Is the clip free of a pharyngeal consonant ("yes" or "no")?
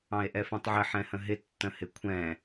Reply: no